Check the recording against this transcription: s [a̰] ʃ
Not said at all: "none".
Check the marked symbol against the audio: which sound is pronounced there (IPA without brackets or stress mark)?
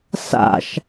a̰